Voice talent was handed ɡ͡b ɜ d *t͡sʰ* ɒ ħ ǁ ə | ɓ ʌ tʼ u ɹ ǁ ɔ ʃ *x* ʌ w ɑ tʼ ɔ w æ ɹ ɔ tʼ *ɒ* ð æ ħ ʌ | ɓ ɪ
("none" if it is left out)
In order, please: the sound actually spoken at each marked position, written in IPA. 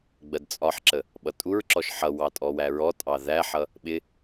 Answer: t͡sʼ, ħ, ɑ

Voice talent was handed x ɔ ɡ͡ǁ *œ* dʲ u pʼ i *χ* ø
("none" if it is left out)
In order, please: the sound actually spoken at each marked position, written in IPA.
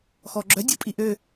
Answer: œ, ʔ

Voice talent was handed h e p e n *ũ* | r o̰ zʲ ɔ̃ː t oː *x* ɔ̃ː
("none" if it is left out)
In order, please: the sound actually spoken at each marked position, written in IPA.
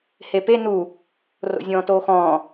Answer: u, x

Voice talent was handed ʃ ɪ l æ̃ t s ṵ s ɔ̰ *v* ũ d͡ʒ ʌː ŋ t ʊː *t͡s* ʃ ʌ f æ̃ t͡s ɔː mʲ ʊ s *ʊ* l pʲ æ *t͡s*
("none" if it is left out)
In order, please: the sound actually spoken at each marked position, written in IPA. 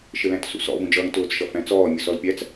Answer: v, t͡s, ɔ, t͡s

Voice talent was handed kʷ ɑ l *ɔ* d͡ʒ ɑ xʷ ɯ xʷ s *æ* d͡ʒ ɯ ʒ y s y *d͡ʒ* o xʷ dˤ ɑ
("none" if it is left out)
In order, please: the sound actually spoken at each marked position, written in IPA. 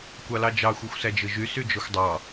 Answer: ɑ, æ, d͡ʒ

